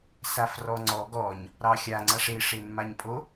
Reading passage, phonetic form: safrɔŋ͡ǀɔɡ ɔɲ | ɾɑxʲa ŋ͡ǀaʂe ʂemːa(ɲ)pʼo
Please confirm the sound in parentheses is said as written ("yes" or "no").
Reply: yes